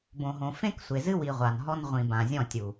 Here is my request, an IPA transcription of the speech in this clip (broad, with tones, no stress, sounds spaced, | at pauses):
b õ˨ ɦ õ˨ f ẽ˦ k sʷ e˨ z ɨ˦ w i˨ ʁʷ a˨ n ɦ ɔ˦ n ʁʷ ĩ˨ b ã˨ zʲ ɔ̃˦˨ tʲ u˨